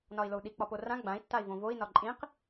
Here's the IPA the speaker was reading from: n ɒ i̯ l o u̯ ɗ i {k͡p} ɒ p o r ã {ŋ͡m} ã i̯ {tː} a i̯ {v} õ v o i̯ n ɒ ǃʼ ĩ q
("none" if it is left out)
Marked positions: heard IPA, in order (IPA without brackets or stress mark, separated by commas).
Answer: k͡p, ɡ͡b, tː, v